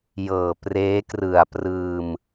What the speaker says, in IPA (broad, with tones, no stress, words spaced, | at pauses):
jɤː˨˩preː˦˥krɯ˨˩a̯prɯː˧m